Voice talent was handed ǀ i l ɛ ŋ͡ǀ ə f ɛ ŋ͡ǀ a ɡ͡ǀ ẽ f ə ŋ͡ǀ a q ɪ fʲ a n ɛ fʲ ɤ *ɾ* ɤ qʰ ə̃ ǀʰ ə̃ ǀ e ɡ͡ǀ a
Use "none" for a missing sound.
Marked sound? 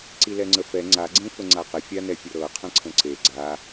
ɾ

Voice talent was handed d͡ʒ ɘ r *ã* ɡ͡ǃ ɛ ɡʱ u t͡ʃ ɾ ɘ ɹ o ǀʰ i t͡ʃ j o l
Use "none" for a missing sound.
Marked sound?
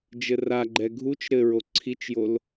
a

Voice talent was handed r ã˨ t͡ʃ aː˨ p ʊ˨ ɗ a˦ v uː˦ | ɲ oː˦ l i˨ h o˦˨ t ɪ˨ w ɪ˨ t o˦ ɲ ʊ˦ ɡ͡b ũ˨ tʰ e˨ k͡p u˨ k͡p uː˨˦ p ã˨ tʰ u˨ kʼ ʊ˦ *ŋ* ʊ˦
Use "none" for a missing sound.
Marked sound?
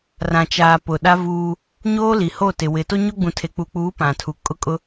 kʼ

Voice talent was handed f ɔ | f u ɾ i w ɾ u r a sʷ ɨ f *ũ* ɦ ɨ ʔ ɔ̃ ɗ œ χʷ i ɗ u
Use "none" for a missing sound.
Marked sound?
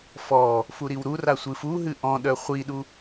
u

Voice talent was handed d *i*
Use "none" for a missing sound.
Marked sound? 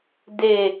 e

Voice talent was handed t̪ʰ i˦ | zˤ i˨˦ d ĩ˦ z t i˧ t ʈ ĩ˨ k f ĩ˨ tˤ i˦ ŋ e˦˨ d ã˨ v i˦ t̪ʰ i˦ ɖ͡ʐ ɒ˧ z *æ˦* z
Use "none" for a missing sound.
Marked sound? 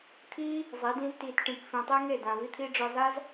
a˦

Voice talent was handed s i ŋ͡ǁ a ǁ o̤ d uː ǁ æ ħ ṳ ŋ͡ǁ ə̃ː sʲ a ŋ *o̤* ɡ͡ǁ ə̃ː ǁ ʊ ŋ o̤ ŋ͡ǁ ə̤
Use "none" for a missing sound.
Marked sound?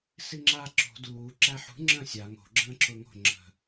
o̤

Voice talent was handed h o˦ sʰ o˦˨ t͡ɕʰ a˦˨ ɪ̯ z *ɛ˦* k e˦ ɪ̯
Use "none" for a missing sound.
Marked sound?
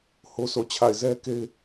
ɛ˦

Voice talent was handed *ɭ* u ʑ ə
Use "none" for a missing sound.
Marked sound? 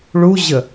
ɭ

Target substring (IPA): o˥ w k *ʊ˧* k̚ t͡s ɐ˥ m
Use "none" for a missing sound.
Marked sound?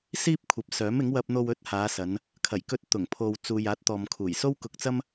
ʊ˧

